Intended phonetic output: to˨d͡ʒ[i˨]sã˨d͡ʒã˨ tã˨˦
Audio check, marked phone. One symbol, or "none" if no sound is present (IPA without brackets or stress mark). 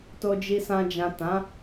i˨